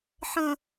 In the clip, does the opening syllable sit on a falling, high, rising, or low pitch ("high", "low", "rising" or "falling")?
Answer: low